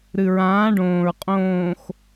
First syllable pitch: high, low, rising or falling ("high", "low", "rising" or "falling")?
low